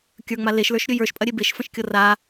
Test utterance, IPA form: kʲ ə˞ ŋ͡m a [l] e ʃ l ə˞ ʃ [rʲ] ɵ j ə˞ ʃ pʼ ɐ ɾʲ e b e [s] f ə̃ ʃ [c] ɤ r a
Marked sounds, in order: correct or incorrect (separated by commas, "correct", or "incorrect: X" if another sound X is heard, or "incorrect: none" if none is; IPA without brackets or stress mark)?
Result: correct, incorrect: ɾʲ, incorrect: ʃ, incorrect: kʲ